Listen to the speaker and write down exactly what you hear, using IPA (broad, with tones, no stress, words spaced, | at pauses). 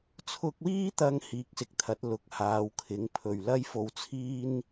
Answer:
t͡sʰʊ˧k̚wiː˥t̪ɐ˧ŋ hiː˨˥k̚sɪ˨k̚t̪ʰɐ˨˥t̚ lʊ˨˥k̚ haː˨˧wkʰɪ˨˥ŋpʰɵ˨ɥ lɐ˥jfo˧wt͡sʰiː˥n